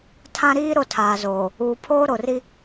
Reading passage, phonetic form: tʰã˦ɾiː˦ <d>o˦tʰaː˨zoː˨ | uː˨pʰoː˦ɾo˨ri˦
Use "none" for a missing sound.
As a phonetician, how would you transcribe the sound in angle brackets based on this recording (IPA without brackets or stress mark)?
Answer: ɾ